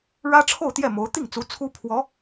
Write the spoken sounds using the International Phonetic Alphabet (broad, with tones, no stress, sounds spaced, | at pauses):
ɻ ä˥ ʈ͡ʂʰ o˥˧ ʊ̯ t̪ j ɛ˥˩ m o˧˥ ʊ̯ t̪ i˥˩ ŋ t͡s u˧˥ t͡sʰ u˥ pʰ w ɔ˧˥